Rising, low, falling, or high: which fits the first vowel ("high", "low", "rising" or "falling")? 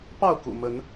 falling